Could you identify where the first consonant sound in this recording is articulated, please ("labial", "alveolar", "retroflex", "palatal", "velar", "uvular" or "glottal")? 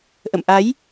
glottal